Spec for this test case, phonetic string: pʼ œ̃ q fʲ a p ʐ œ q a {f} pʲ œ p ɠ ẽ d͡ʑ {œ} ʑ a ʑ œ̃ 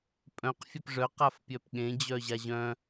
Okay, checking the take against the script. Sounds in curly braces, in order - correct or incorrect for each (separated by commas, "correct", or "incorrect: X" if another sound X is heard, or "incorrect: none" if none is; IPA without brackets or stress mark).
correct, correct